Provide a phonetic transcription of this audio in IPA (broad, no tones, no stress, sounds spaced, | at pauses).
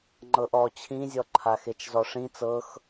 ŋ͡ǃ ɤ ʔ ɔ t͡ɕʰ ĩ zʲ ɔ ǃʰ a x e t͡ʃ z ɔ ʂ ĩ t͡s ɤ x